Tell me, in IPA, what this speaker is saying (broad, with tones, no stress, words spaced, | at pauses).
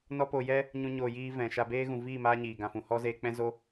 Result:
nɔ˦po˧ jɛ˦ | ɲũ˦ɲoː˧jiː˦ vɛ̃˨ʃa˧ beː˦ɣũ˨ viː˦˨maː˧ ɲiː˨ ɡã˨fũ˨ hɔ˦zeː˧k͡pɛ̃˦zo˦